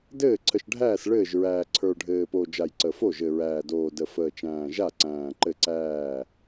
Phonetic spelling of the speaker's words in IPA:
d ɘː˥˩ ǀʰ ə˨˩ ʃ ɖʱ æː˥˩ s ɭ ɘː˥˩ ʒ ɹ æː˨˩ ǀʰ ə˞˨˩ ɖʱ ɘː˨˩ p o˨˩ d͡ʒ a˨˩ j ǀ ə˨˩ f o˥˩ ʒ ɘ˨˩ ɹ æː˨˩ d oː˨˩ d ə˨˩ f əː˨˩ t͡ʃ æ̃ː˨˩ ʒ a˥˩ ǀ æ̃ː˨˩ ǃ ɘ˥˩ ǀ æː˥˩

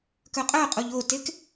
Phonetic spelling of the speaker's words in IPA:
k œ qʼ œ qʼ o ʎ o t e k

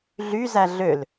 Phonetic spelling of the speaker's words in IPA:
ɮ y z æ ɮ ø l

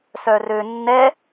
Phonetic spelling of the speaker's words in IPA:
s œ r ø nː ɛ

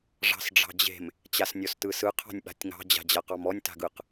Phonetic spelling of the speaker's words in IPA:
ʐ ɑ̤ s ɖ͡ʐ ɑ̤ d͡ʑ e̤ m | t͡ɕ a s nʲ ɔ s t ɯ s ɯ qʰ ɑ̤ nʲ ɓ a̤ tʲ ŋ ɑ̤ d͡ʑ a̤ d͡ʑ a q ɑ m ɔ nʲ t a̤ ɡ ɯ q

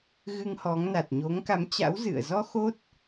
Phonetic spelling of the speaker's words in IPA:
ɣ ɨ˧ ŋ h ɔ˨˦ ŋ n a˨˩ t̚ ɲ o˨˦ ŋ k a˨˦ m t͡ɕ a̰˧˥ w z ɨ̰˧˨ ə̯ z ɔ˧ x o˦˥ t̚

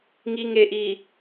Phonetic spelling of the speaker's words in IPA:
ŋ i˨ ŋ e˨ ʔ i˨

